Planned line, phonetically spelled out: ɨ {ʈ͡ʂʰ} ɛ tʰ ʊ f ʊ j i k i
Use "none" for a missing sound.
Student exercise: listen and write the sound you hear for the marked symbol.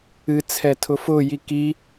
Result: t͡sʰ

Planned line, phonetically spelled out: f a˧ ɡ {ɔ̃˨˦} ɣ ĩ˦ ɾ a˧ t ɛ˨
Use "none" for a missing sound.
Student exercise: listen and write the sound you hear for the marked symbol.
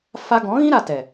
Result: ɔ̃˨˦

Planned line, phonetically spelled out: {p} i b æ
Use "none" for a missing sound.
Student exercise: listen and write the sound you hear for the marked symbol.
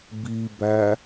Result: b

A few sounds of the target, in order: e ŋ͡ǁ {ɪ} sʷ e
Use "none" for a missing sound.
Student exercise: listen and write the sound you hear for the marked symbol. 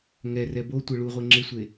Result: ɪ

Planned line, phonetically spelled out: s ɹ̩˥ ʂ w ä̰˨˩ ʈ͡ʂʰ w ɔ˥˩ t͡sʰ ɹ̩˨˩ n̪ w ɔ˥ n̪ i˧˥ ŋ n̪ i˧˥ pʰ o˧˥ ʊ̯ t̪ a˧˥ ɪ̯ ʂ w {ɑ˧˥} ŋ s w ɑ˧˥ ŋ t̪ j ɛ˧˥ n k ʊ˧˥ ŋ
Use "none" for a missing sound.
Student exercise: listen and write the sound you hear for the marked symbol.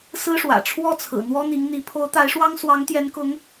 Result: ɑ˥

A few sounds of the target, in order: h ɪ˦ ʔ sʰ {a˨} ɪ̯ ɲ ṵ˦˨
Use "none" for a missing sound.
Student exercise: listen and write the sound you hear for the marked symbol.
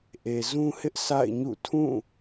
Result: a̰˦˨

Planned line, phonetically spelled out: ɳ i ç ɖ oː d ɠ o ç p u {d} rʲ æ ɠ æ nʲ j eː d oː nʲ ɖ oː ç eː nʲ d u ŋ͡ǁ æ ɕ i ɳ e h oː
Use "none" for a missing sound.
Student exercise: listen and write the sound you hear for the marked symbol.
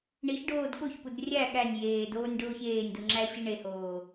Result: d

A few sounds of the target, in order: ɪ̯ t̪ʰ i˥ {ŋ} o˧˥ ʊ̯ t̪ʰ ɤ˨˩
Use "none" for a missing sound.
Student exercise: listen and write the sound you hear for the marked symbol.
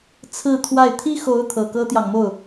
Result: x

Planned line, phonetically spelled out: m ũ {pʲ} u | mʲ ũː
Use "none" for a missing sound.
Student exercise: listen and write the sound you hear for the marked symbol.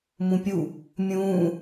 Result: pʲ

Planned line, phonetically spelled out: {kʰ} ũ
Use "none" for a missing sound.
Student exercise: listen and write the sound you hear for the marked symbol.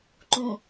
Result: ǃ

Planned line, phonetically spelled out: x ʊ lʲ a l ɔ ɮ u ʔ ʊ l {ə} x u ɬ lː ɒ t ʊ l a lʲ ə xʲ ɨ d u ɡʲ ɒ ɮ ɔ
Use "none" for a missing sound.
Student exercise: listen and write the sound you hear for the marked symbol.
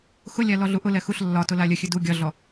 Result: ɛ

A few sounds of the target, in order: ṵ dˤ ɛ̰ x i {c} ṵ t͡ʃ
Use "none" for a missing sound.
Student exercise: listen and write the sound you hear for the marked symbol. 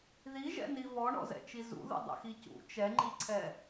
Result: c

